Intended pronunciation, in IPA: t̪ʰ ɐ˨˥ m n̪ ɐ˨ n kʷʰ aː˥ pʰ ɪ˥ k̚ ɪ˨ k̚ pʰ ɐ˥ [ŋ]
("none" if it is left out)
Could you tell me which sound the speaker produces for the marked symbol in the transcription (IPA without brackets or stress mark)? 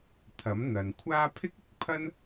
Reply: n